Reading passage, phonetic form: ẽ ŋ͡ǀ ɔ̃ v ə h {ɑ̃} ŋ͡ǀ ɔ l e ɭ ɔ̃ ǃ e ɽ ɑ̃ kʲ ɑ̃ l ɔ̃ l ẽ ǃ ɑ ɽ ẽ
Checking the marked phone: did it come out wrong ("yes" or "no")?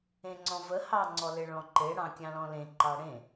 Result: yes